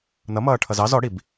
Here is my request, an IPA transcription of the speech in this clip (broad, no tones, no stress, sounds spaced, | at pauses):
n ʌ m ʌː ʈʰ ʌ z ɑ z ɔ ɽ i b